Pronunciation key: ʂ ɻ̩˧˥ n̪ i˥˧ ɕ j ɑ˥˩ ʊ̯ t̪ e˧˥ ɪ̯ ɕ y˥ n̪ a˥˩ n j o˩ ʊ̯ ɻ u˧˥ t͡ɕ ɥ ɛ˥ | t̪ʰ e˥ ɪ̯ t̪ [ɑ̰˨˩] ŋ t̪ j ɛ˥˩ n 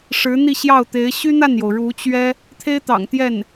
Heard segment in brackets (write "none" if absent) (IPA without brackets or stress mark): ɑ̰˨˩